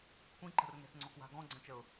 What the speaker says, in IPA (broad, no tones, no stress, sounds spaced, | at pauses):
kʷʰ ĩ ǃ ə̤ r ŋ ɛ̤ s ŋ͡ǀ ɔ k w a̤ ɡ ɔ̃ ɡ͡ǀ ə̃ t͡ʃ ə ʊ̯